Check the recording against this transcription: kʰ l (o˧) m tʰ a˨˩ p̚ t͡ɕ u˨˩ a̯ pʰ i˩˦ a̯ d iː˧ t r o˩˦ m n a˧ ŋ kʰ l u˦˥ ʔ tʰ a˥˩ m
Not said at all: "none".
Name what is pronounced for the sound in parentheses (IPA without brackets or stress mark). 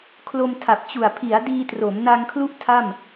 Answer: o˧